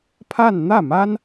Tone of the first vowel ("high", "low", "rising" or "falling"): falling